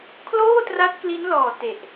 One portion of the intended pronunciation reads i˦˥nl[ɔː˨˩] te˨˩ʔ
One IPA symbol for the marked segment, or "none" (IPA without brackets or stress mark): ɔː˨˩